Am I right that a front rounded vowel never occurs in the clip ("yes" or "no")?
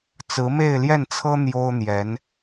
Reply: yes